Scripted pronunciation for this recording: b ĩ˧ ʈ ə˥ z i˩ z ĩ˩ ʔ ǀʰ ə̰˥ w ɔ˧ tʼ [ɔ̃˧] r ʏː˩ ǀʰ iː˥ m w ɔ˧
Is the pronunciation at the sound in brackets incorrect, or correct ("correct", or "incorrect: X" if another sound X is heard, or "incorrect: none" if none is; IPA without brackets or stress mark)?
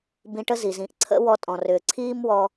incorrect: ɔ̃˩